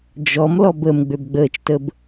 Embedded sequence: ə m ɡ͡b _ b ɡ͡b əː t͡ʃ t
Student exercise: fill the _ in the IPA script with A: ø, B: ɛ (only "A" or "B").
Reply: A